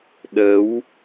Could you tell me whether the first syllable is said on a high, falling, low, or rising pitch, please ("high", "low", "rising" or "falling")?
rising